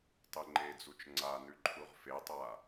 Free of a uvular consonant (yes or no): no